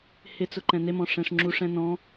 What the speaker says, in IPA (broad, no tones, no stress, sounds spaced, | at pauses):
h ɪ t͡s ʊ ǃ ɛ̃ n e m ɔ̃ ʂ ɛ̃ ʂ ŋ͡ǁ u ʂ ɛ̃ n ɔ̃